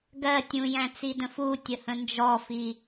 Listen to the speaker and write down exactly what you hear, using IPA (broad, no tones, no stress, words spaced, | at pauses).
ɡɜ tʲũjæ̃t͡sidə̃ futʲəhə̃ nd͡ʒɔfi